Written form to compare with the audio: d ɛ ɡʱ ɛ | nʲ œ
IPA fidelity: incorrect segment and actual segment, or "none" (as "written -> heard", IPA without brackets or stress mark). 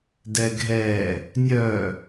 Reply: none